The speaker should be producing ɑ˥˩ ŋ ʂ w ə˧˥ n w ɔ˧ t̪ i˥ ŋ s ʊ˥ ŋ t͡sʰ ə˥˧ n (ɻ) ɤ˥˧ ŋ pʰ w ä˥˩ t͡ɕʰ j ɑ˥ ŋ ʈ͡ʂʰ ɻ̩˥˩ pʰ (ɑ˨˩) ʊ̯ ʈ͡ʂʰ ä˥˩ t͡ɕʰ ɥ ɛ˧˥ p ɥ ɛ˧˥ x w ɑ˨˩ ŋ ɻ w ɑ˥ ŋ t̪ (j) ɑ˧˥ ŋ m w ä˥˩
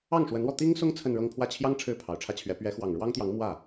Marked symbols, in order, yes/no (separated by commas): yes, yes, yes